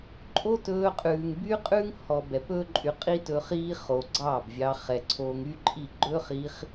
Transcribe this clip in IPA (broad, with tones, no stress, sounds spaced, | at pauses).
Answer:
ǃʼ o˦ t ɵː˧ qʼ ʉː˨ ŋ b y˦ qʼ ʉː˦ ŋ h ɔ˨ b ɛ˨ p ɵː˦ ǃʼ y˧ qʼ i˦ t ɵː˧ χ iː˦ χ o˨ ɡ͡ǀ ɑ˦˨ b vʲ ɑ˧ χ ɛ˨ ǀʰ oː˧ ŋ y˦ ǃʼ i˦˨ ɡ͡ǃ ɵː˦ χ iː˧ χ